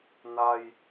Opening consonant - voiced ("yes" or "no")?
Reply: yes